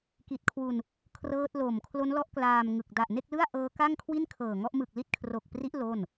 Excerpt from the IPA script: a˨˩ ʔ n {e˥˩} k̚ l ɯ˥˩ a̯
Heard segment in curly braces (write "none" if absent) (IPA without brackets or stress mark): e˥˩